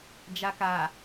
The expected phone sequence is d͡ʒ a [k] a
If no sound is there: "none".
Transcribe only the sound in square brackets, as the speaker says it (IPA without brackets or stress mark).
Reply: k